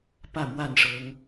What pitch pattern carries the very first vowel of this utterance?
falling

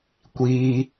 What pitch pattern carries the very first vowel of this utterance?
high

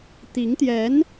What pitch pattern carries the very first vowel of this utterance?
rising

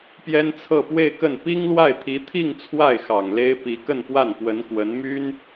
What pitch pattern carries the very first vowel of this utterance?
high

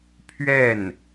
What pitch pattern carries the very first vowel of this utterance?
falling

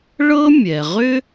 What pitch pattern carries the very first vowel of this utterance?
high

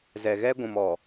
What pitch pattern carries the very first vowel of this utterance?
low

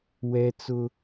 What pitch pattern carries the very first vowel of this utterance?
high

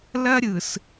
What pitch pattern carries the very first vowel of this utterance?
high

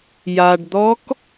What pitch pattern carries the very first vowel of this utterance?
low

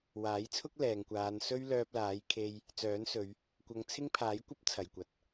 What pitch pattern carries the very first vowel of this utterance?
rising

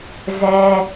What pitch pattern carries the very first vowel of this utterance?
high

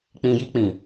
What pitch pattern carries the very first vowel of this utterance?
low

